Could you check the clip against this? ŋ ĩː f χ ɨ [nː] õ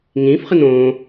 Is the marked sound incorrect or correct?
incorrect